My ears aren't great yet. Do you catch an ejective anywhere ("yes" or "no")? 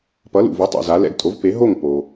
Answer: yes